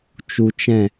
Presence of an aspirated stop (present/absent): absent